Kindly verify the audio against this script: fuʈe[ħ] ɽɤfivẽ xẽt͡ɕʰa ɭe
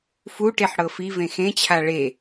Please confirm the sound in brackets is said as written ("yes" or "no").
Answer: yes